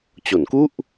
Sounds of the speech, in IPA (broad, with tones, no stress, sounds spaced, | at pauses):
t͡ɕ o˩˦ n k u˥˩ ʔ